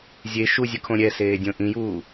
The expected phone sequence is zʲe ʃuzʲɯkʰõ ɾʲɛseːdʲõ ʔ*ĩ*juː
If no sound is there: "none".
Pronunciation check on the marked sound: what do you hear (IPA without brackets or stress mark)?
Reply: ĩ